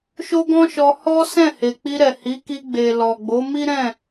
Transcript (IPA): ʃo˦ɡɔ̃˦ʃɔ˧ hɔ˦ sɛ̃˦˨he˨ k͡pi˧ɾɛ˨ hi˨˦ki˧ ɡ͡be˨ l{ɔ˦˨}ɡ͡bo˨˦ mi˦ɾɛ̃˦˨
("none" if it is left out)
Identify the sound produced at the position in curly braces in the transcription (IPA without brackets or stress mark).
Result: ɔ˨